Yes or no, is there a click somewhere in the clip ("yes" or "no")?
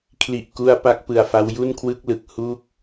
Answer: no